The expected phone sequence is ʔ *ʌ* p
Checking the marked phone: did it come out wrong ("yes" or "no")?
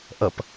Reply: no